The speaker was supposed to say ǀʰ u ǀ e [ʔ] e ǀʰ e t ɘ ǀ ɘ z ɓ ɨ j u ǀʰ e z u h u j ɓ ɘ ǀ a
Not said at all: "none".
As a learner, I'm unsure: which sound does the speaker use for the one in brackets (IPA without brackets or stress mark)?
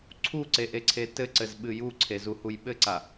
ʔ